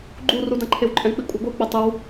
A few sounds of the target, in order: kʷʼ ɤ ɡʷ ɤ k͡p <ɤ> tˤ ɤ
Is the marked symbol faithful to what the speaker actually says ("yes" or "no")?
yes